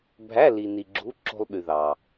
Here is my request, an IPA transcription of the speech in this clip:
bʱæ˧˥˧ li˧ ni˧ɡ͡ǁu˧˥˧ ǁo̤˧lˠɓy˩ ðɑ˩

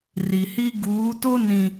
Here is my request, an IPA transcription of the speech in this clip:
ri˨hi˦ ɡuː˨˦to˦ nĩ˨

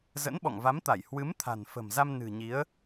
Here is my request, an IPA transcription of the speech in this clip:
zə̰˧˥nɓɔ̰˧˨ŋva˨˦mt̪a˧˩j hwɨ˨˦mt̪ʰa̤˨˩nfə̤˨˩mza˧m nɨ̤˨˩ɲi˨˦ə̯

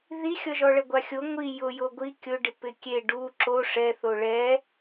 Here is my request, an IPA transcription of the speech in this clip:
ðixʲɔʒɔɭɛ ɡʷaxʲo ŋʷi jʊ joɡʷi kʲʊɖɪ pɪkʲe ɖu ǁo ʂɛθo ɭɛ

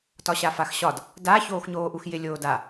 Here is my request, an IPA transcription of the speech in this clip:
tɒɕafaxɕɒd | da çoːxɲoːʔuxjɪ lʲoːda

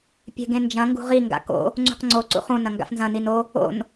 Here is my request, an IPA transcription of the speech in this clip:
pʲe̤ɡẽnd͡ʒɐ̃ ŋɡṳʁi ŋɡa̰ko̰ | ŋ͡ǀṳqŋ͡ǀo ǀṵχũ nɐ̃ŋɡa̰fnzɐ̃ nino | o̰n

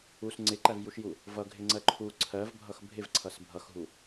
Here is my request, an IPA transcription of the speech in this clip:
us ŋ͡ǀɪǃævjuʃju | vʌɡʱɪŋ͡ǀɜ ǃʰu ǀʰɜvbʱʌx bʱɪvǀʰʌs bʱʌxɦu

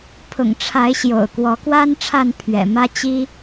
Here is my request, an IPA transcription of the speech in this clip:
pʰʊ̰˨˩ŋʈ͡ʂʰa˨˦ɪ̯ ɕjo̰˨˩ʊ̯kwɔ˨˦kwa˦n ʈ͡ʂʰa˥˨npʰɥɛ̰˨˩mä˦ t͡ɕi˦

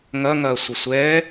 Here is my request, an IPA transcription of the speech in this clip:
ŋɐŋɐː sʷɪsʷɛː

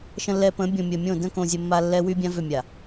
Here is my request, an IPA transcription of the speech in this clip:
ʃə̃˨lːɛ˨ pə̃˨˦bʲõ˨mʲə˨mʲõ˦˨ də̃˦kõ˨ zʲə˨mːa˨ lːɛ˦wy˦ bʲã˦vʏ˦˨ mʲa˨

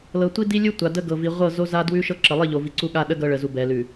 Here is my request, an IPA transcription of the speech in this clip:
lɤ˨tʷi˦di˦lʲu˦ tʷa˨də˦ɡɤ˨ vi˨ʁʷɤ˦˨ zo˦ za˦dwʉ˦ʃɤ˦ ǁə˨lˠi˦˨ʎo˨ vi˨ǀu˦ɠa˦ ɗə˦ ɡɤ˦ɭə˨ zu˨bɛ˨lʉ˨

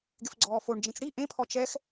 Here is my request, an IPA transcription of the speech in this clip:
ɡɪfɡ͡ǀɔːfoɳd͡ʒẽt͡s ɽi ʔẽpʰɔ t͡ʃɛx

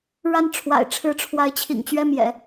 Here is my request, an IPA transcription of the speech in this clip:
ɻa˥˩n ʈ͡ʂʰwa̰˨˩ɪ̯ʈ͡ʂʰɻ̩˧˥ʈ͡ʂʰwa˧˥ɪ̯ t͡ɕʰḭ˨˩ŋt͡ɕɥɛ˥˩ mjɛ̰˨˩˦

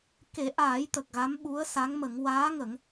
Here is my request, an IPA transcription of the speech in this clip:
ke˨˩˦ʔaː˨˩˦jt̪ə˨˩k̚ ɣa˧˥mɓu˧˥ə̯sa˧˥ŋmə˨˩˦ŋ waː˧˥ŋə˨˩˦ŋ

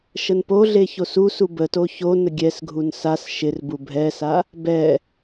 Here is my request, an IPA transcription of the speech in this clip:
ʃənpoɮe çosusu bəto ço nəɡʲɛsɡʱun sas ʃɪrbu bʱɛsa | bɛ

